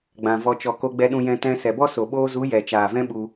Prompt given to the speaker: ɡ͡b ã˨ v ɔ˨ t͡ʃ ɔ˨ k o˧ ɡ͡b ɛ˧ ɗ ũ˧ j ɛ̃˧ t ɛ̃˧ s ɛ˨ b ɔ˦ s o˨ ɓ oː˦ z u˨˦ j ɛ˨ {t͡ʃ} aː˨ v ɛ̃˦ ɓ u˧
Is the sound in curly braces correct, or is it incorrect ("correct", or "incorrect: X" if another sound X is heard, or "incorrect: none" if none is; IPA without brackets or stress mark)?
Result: correct